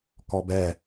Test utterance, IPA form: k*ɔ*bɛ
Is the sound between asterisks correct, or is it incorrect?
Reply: correct